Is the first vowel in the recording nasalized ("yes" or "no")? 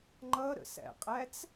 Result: no